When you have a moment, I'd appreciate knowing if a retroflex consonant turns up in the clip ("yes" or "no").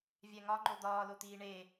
yes